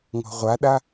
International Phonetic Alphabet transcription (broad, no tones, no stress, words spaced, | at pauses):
ŋɔ̤ʁʷaɗa